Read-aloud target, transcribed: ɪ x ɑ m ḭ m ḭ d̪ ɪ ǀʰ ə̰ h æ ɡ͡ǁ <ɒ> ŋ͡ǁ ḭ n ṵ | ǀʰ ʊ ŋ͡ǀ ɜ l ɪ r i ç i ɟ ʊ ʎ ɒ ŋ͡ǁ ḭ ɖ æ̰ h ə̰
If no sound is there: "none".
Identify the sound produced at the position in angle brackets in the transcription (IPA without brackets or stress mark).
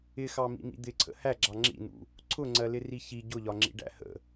ɑ